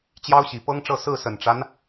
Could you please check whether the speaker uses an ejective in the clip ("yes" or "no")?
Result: no